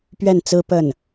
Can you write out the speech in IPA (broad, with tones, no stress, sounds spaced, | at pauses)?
p ɥ ɛ˥˩ n t͡s ɹ̩˥ p ə˥˩ n